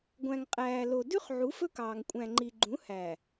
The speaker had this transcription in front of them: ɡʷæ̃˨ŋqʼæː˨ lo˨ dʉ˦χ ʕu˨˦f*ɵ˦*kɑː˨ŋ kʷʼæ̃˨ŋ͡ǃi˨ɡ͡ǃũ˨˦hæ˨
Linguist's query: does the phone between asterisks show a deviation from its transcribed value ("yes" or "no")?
no